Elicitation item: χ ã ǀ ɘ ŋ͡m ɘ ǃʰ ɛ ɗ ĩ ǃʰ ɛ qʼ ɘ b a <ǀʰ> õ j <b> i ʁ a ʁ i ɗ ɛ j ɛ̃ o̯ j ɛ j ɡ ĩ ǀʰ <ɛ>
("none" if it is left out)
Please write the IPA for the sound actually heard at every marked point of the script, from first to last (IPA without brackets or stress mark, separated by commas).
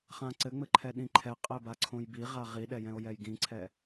ǀʰ, b, ɛ